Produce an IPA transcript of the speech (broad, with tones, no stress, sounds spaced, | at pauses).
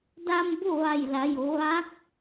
d a˧ m b o˥˨ ʋ a˧˩ j l a˩˧ j o˩˧ ʋ a˧˥ k̚